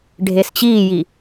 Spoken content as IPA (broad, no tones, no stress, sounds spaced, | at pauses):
ɖʱ e s t͡ɕ iː j i